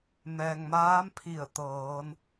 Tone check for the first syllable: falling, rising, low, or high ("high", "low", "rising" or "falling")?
low